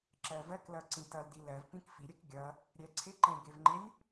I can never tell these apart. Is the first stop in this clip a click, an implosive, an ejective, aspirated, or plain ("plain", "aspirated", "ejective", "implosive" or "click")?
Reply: click